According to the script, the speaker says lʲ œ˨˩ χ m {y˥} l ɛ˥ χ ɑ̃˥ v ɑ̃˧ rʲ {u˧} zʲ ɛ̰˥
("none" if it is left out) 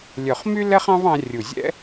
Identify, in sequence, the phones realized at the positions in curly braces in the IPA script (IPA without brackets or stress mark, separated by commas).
y˥, u˨˩